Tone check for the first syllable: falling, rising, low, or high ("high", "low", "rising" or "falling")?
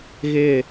falling